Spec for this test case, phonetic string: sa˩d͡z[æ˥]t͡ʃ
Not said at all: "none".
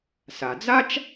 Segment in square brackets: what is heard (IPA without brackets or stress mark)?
a˥